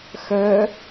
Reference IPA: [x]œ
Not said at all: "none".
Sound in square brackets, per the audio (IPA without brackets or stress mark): x